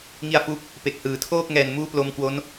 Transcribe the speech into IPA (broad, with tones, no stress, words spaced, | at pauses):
ŋi˧a̯fu˦˥k̚ | pe˨˩k̚hɯː˩˦tʰoː˥˩k̚ ŋɛː˨˩nmuː˦˥ plo˧mkwo˦˥n